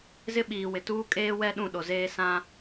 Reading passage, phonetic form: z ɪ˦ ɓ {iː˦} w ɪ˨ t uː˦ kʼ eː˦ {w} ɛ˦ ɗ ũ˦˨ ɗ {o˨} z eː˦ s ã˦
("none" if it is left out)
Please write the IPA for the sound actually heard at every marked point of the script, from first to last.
iː˨, w, o˨

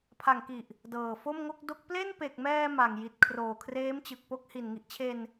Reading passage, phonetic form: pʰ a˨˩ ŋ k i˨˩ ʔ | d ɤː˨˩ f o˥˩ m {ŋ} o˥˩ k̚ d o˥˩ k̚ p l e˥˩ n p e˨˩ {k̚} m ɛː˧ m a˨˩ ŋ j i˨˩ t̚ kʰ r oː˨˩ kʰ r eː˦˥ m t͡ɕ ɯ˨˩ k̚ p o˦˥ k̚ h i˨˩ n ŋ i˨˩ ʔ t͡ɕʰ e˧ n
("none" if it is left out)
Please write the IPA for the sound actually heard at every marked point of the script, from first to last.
ŋ, k̚

